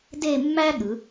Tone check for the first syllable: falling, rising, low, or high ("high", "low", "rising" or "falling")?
falling